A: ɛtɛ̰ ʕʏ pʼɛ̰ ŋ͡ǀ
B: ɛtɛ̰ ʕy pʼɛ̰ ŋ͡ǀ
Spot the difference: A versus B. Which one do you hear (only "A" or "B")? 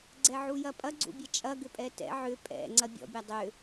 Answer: A